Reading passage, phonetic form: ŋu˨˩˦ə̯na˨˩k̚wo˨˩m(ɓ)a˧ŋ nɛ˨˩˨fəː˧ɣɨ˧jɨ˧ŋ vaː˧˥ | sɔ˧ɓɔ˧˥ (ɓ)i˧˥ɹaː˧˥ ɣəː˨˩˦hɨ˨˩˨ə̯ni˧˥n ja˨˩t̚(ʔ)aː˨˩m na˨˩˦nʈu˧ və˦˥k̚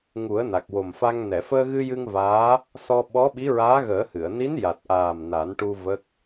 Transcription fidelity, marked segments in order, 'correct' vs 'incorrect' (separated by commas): incorrect, correct, correct